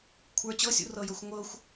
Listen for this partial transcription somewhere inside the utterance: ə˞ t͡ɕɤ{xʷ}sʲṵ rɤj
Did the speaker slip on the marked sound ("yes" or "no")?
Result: yes